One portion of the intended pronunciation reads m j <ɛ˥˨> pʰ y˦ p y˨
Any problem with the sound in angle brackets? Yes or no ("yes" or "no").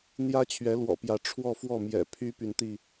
yes